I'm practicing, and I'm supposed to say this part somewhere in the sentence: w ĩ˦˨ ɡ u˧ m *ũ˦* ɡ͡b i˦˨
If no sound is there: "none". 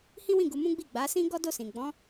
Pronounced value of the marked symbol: ũ˦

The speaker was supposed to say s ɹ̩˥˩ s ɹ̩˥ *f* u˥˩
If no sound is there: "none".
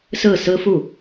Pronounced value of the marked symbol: f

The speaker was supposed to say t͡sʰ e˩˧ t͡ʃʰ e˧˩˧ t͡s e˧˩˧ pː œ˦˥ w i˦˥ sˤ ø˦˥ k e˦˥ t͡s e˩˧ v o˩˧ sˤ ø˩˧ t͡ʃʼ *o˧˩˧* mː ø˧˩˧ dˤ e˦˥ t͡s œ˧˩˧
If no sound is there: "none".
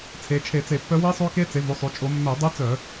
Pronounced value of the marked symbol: o˧˩˧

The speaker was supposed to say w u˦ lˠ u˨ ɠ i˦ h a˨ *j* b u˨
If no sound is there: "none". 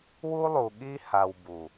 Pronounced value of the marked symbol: w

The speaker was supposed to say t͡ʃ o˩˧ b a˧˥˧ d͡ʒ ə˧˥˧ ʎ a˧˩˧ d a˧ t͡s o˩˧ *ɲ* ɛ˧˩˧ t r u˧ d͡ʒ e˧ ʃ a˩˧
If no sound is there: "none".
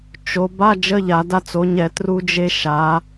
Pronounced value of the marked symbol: ɲ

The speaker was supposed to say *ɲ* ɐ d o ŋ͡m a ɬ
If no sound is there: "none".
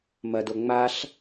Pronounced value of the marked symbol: m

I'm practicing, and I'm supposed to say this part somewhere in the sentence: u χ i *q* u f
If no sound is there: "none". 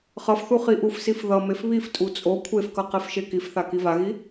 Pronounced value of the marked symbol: ʔ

